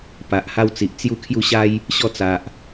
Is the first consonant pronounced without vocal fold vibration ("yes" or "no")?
yes